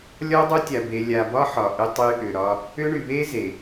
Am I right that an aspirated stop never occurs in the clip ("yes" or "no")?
yes